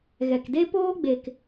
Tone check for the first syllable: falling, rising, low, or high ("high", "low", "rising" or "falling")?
low